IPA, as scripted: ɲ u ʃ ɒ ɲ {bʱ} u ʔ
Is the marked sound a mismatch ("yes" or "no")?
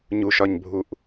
no